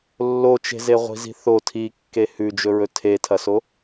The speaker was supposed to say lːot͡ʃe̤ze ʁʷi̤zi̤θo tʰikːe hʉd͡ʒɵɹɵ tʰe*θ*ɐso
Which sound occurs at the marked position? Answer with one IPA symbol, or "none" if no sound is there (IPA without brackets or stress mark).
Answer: tʰ